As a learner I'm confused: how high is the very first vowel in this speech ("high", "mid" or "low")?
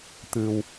high